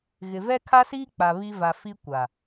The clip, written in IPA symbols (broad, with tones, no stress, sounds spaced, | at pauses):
ɣ ɪ˨ v ɛ˦ kʰ a˦ s iː˦ k͡p a˨ β i˦ v a˨ f i˦ kʷ a˨